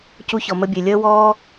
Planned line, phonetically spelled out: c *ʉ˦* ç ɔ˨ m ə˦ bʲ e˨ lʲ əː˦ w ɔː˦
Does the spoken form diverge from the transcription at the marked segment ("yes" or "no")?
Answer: yes